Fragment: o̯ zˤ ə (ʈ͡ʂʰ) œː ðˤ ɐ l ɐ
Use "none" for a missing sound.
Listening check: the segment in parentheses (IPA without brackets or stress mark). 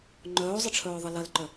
ʈ͡ʂʰ